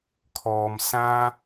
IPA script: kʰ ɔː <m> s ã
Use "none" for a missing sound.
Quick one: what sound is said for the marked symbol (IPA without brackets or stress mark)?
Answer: m